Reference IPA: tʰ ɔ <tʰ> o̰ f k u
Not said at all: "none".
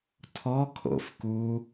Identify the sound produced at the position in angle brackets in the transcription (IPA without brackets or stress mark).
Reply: kʰ